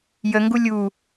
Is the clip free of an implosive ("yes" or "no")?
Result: yes